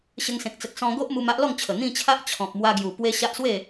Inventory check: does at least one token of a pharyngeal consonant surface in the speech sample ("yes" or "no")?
no